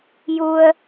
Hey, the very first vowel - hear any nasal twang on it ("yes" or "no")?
no